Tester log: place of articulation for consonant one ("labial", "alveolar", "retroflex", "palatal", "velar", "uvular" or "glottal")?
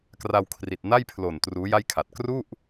velar